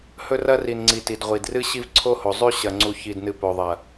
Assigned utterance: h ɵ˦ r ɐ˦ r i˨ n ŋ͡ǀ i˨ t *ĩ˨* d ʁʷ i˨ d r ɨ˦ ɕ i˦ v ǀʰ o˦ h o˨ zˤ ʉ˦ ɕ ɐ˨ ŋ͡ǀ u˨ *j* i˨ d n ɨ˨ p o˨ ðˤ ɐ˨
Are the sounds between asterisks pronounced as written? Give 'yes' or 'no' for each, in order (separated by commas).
no, no